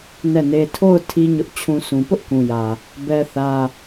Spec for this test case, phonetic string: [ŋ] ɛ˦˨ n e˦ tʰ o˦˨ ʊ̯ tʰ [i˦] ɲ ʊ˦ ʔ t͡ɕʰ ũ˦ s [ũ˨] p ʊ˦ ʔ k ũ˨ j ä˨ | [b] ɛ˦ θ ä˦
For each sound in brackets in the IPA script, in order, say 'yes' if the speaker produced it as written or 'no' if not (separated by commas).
no, yes, yes, yes